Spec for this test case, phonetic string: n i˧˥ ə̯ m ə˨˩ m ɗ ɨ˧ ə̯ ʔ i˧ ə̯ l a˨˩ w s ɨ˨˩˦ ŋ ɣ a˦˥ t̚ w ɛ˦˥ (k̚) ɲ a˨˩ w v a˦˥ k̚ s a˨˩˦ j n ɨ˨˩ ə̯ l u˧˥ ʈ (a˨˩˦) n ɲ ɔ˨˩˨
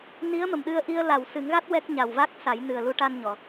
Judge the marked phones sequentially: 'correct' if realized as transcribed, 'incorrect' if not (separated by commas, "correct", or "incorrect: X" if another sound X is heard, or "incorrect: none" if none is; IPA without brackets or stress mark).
correct, incorrect: a˧